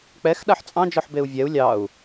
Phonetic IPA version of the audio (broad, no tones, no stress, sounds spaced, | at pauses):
k͡p ɛ x ɗ a ħ t͡sʼ ɑ̃ d͡ʒ ɔ ħ b e u̯ vʲ ɛ u̯ lʲ ɑ u̯